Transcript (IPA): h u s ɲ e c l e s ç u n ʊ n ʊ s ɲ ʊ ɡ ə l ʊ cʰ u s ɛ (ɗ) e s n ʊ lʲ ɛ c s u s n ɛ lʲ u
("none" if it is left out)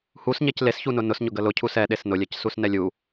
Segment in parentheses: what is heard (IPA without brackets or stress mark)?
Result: ɗ